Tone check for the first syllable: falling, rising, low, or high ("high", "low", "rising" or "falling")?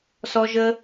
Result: high